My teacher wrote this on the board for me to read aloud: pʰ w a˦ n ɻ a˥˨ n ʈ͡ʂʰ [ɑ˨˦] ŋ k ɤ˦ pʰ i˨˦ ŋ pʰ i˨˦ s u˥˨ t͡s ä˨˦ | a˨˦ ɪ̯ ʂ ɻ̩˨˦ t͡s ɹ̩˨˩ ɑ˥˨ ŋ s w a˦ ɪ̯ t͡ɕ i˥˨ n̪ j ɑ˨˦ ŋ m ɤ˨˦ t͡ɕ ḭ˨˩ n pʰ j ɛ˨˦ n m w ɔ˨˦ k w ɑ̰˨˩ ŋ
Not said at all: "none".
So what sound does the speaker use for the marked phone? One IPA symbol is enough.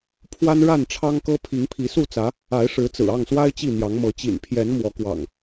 ɑ˦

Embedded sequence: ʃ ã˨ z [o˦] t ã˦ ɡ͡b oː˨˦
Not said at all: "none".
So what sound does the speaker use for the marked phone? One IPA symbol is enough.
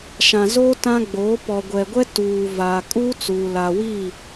oː˦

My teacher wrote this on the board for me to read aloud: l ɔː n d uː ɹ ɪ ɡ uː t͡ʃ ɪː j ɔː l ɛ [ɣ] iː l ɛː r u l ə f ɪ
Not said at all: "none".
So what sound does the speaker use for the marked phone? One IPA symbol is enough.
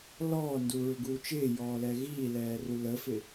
ɣ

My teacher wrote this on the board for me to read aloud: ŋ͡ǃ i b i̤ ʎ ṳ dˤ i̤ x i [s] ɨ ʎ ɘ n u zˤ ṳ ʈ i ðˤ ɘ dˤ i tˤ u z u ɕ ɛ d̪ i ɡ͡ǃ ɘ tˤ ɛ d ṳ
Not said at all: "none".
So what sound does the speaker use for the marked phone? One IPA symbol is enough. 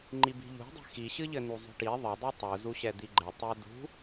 ɕ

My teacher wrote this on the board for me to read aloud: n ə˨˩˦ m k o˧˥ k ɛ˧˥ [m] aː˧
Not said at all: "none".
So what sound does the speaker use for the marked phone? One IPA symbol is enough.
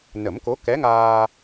ŋ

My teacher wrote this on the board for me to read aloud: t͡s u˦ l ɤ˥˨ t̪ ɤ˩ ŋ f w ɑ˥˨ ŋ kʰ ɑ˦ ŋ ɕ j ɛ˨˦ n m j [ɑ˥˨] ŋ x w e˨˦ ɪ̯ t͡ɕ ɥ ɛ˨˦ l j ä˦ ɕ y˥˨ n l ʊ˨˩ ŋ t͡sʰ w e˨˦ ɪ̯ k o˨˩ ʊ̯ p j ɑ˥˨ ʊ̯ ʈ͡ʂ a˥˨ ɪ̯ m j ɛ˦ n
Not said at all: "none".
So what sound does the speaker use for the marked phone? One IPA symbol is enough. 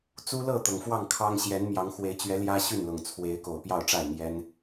ɑ˨˦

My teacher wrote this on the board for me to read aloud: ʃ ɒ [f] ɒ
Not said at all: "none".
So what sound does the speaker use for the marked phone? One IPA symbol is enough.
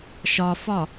f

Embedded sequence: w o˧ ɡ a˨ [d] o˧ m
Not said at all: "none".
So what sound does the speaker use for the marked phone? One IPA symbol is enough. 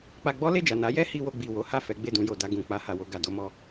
d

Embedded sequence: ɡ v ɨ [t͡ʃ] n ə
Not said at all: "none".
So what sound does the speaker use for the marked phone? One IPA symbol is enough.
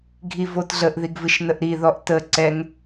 ʃ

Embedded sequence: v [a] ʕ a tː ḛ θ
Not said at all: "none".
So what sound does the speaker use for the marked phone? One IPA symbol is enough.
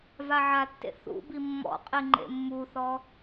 a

